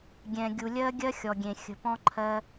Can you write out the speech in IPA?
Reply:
ɡʲ ɛ̃˨ ɡʲ u˨ lʲ ɜ˧ ɡʲ ɜ˦ xʲ ɔ˨ ɡʲ ẽ˨ xʲ ə̤˨ p ɔ̃˧ ǃʰ ɜ˧

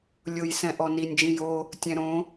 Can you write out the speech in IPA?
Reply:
lʲ ʊ j s ɛ̃ ʔ ɔ n i nʲ d͡ʒ ĩ j o | tʲ ɛ̃ ɾ õ

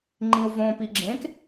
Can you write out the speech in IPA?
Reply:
ŋ͡ǃ ĩ u̯ v õ p i ɡ͡ǁ ẽ k

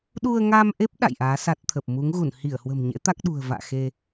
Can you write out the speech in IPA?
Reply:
ɗ u˧ ə̯ ŋ a˧ m ʔ e˦˥ p̚ ɗ a̰˧˨ j ʔ aː˨˦ s a˦˥ t̚ t̪ʰ ə˨˩ p̚ m u˨˦ ŋ ɣ u˧˩ n h i˧˩ ə̯ h w ə̤˨˩ m ɲ ḛ˧˥ t̪ a˦˥ k̚ ɗ ṳ˨˩ ə̯ v a̰ː˧˨ x e˧

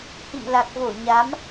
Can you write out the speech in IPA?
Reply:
h ḭ˧˨ m l a˨˩ k̚ v o˧˩ ɲ a˨˦ m

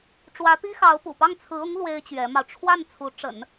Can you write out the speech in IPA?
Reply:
ʈ͡ʂ w ä˧˥ t̪ i˥ x ɑ˧˥ ʊ̯ p ṵ˨˩ p ɑ˥˩ ŋ t͡sʰ ɹ̩˧˥ ʊ˧˥ ŋ l w e˥ ɪ̯ t͡ɕ ɥ ɛ˧˥ m ɑ˧ ʊ̯ ʈ͡ʂʰ w a˥˩ n t͡sʰ u˧˥ ʈ͡ʂ ə̰˨˩˦ n

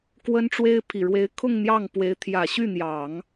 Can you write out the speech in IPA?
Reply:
k w ə˥ n ʈ͡ʂ w e˥ ɪ̯ pʰ i˨˩ ɻ w e˧˥ ɪ̯ kʰ ʊ˥˧ ŋ n̪ j ɑ˥˩ ŋ p w e˧˥ ɪ̯ t̪ʰ j ä˨˩ ɕ y˥˩ n̪ j ɑ˨˩˦ ŋ

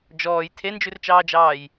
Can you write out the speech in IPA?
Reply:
d͡ʒ ɔː j tʰ e n d͡ʒ ʉ r t͡ʃ ɑː d͡ʒ ɑː j

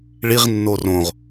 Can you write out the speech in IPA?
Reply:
ɭ i ʁ nː o r õ ʁ

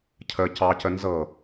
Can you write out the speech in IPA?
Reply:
cʰ ə c ɑ c ə n z ɤ

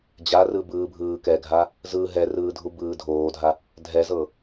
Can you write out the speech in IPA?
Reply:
d͡ʑ a r ɯ b ɯː bʱ ɯː k ɛ ɡʱ a | z ɯ ɦ ɛ r ɯː dʱ u b ɯː dʱ oː dʱ a | dʱ ɛ z ɤ

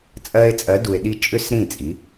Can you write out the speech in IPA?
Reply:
t͡sʼ ɜ˧ e̯ t͡sʼ ɜ˩˥ d u˩ e̯ ɗ i˧ t͡ʃʼ ʏ˥ s ɾ ĩ˥˩ t͡sʼ i˩˥

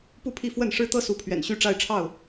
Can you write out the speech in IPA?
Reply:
p u˥˨ pʰ i˥˨ f w ə˥˨ n ʂ ɻ̩˦ t̪ ɤ˦ s u˨˦ pʰ ɥ ɛ̰˨˩ n ɕ y˥˨ ʈ͡ʂ a˥˨ ɪ̯ ʈ͡ʂʰ ɑ˥˨ ʊ̯

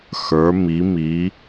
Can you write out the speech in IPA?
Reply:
x ə˞˩˧ m i˩˧ m i˩˧

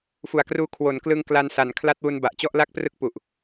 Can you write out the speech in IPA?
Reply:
f u˨˩ a̯ k r uː˧ kʰ w o˩˦ n k l ɯ˧ ŋ k l a˧ n s a˩˦ n kʰ l a˦˥ t̚ w u˧ n b a˨˩ ʔ t͡ɕ ɔ˥˩ ʔ l a˥˩ k̚ p r ɯ˥˩ k̚ p u˨˩ ʔ

